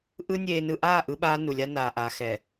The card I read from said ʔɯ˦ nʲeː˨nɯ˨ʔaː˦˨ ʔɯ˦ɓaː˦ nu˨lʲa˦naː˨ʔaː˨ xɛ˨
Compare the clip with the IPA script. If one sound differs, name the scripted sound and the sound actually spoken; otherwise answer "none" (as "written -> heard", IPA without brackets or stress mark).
none